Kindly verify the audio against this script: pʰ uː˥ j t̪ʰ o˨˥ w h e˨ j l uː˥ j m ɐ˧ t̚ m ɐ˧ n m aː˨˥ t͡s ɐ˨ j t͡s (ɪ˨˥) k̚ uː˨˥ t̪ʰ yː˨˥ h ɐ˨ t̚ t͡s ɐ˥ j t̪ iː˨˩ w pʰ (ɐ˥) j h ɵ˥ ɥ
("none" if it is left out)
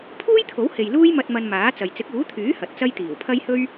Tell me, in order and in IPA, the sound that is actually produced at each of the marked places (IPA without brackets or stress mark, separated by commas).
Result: ɪ˨˥, ɐ˥